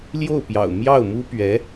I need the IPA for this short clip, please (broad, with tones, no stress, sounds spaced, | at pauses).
l j o˥˩ ʊ̯ p j ɑ̰˨˩ ʊ̯ m j ɑ˥˩ ʊ̯ m u˥ p ɥ ɛ˧˥